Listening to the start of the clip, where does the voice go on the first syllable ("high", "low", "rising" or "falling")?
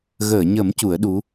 low